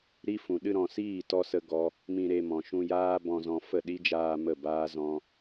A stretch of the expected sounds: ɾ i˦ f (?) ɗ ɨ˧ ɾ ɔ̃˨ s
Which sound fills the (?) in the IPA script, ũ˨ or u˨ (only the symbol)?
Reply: ũ˨